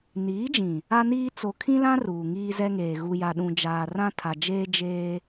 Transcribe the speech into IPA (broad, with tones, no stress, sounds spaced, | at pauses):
n iː˨˦ d͡ʒ ĩ˨ | a˦ n iː˦ t͡s o˨ kʰ ĩ˦ l ã˦ r uː˨ ŋ iː˦ z ɛ˦ ŋ eː˨ ɣ u˨ j a˨ ɗ ũ˨ d͡ʒ aː˨ r ã˦ tʰ a˨ d͡ʒ eː˦ d͡ʒ eː˦